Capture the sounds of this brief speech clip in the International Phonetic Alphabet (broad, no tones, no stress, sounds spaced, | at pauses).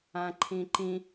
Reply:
ã ǃʰ ĩ ǃ ĩ